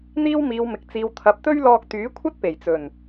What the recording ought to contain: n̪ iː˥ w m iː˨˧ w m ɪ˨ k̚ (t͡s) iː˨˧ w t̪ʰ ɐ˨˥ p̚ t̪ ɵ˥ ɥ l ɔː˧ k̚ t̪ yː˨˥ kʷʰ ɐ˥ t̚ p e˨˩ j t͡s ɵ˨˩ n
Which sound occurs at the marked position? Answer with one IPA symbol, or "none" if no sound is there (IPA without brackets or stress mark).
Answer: t͡s